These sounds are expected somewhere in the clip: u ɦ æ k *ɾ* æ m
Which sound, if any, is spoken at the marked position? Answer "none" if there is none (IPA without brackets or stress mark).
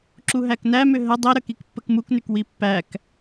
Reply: n